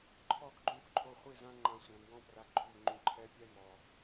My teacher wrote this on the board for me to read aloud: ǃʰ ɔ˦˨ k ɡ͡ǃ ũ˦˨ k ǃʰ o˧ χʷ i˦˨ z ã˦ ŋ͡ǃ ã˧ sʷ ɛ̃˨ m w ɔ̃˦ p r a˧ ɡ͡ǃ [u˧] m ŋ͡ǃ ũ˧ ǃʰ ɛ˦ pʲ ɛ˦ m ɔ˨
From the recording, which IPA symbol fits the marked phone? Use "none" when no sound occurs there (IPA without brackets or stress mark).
u˦˨